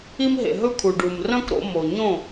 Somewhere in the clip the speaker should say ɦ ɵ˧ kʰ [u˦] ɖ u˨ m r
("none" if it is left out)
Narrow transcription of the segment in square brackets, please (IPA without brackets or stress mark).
u˨